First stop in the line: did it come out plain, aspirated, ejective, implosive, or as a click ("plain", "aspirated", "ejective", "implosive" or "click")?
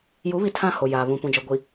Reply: aspirated